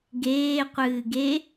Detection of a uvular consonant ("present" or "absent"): present